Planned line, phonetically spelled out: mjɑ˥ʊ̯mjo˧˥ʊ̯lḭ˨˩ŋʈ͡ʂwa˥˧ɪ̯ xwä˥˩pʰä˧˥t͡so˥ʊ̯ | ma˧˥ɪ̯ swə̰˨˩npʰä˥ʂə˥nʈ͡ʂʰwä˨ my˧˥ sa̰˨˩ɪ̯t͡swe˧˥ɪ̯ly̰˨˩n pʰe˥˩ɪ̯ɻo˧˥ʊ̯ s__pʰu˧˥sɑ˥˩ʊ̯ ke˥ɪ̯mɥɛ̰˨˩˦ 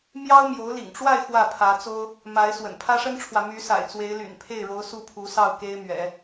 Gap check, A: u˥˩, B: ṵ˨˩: A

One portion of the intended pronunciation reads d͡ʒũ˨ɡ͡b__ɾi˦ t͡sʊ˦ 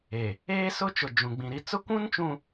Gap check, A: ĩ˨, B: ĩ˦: A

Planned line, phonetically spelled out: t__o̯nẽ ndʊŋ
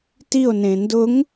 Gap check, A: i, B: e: A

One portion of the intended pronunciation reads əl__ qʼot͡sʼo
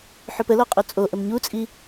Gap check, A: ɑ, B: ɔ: B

